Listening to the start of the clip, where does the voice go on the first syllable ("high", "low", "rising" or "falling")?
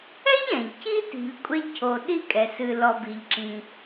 high